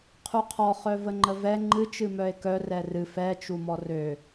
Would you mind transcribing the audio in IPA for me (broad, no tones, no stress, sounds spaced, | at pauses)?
qʰ u qʰ ɔ χ œ v ə ŋ͡ǃ ə v ɛ ŋ͡ǃ ɨ t͡ʃ ɨ m œ e̯ k œ r ɛ r ɨ f ɛ t͡ʃ u m ɔ r ø